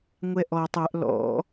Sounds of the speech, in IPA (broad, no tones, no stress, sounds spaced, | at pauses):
ŋʷ ɛ ʔ ɔ tˤ œ ʔ l ɔ̰